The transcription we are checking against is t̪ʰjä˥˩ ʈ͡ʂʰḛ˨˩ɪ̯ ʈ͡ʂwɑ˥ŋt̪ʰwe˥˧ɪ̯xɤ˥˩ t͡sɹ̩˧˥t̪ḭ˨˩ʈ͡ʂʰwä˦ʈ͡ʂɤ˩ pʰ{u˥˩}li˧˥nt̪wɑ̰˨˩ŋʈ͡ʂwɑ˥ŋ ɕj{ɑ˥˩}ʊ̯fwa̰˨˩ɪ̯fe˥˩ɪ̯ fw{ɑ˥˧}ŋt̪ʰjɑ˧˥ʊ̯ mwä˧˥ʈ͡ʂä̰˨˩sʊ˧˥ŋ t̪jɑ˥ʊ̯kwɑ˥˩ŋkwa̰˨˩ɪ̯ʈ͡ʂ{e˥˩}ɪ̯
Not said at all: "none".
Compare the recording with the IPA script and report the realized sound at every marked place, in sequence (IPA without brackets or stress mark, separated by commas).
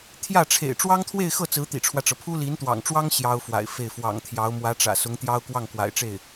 u˥, ɑ˥, ɑ̰˨˩, e˥˩